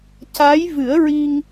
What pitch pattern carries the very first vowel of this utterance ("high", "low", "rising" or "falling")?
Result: rising